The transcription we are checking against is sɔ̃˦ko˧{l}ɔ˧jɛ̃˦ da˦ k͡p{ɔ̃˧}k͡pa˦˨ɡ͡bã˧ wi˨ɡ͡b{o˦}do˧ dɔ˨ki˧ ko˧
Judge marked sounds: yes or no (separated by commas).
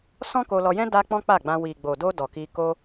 yes, no, no